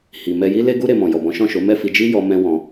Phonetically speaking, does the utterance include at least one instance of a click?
no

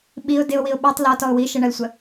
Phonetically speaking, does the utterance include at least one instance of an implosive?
yes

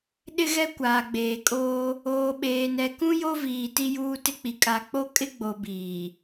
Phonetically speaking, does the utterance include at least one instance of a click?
no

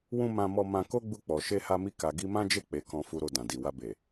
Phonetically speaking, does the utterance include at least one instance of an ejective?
no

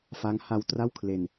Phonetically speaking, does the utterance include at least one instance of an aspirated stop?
yes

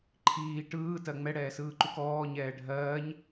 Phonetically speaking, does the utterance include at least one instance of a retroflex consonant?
yes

